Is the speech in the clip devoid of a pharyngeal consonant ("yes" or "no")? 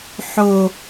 no